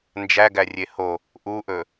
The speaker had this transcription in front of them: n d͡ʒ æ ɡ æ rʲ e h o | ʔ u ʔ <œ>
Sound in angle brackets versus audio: incorrect: ɵ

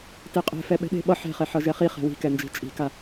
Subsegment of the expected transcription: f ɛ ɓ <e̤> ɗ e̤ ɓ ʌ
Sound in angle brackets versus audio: incorrect: ɛ̤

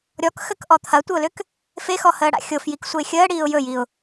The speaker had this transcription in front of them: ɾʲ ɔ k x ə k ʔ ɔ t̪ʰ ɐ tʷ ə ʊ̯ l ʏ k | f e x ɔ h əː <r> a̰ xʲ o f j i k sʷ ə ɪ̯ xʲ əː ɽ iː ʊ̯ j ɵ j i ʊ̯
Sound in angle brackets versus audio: incorrect: ɽ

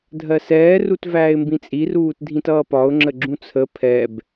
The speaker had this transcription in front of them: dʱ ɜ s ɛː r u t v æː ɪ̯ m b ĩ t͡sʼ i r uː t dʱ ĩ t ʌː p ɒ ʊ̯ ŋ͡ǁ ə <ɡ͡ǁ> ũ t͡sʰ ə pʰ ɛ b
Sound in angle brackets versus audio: correct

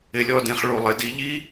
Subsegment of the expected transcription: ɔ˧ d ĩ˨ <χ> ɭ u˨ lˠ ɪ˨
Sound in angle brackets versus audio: correct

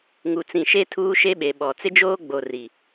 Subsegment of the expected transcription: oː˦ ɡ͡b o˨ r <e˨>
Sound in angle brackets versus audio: incorrect: i˨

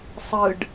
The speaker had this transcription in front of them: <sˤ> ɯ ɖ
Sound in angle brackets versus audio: correct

